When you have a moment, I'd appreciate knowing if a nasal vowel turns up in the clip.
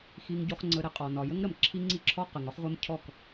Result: no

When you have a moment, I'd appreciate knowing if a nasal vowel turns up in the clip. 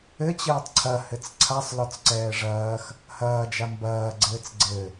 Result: no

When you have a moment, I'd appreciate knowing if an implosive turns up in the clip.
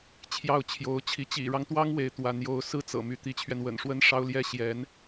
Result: no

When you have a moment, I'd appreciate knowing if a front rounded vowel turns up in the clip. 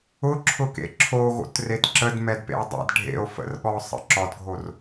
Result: no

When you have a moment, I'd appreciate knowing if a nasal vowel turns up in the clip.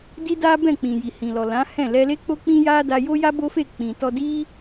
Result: yes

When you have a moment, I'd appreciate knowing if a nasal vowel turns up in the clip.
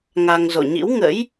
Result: no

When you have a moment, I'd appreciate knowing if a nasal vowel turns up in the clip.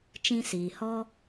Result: yes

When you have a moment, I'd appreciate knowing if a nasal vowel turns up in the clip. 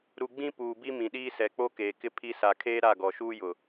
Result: yes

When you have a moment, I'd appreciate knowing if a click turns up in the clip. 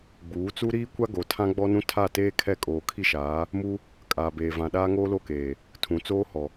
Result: no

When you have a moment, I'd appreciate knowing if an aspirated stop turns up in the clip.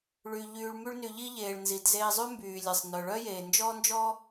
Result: no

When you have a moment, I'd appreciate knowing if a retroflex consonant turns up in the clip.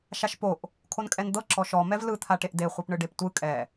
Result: yes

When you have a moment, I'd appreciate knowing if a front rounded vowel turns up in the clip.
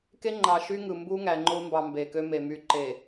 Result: yes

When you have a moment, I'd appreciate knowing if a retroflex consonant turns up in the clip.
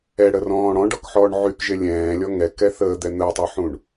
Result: yes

